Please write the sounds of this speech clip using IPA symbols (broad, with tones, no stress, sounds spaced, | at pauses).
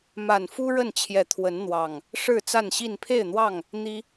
m a˨˩ n f u˦ ɻ ə˥˨ n t͡ɕʰ j ɛ˨˦ t̪ʰ w ə˨˦ n n̪ w ɑ˨˩ ŋ | ʂ ɻ̩˥˨ t͡s a˥˨ n ɕ i˥˨ n pʰ e˥˨ ɪ̯ n̪ w ɑ˥˨ ŋ | n̪ i˦